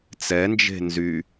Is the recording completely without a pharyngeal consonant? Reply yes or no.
yes